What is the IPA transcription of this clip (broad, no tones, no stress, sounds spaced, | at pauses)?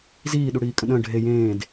z iː ɗ u ɽ iː kʼ ə̃ ɗ ə̃ː ɖʱ e j ẽː d